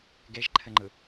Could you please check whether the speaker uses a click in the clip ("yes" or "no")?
yes